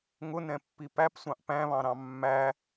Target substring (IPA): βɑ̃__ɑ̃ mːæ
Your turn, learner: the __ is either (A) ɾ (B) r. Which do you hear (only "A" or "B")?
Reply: A